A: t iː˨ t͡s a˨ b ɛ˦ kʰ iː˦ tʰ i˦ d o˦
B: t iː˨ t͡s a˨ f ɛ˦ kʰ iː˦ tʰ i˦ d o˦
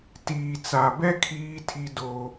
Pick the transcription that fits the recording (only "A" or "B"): A